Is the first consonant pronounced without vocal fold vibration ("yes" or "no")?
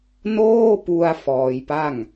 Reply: no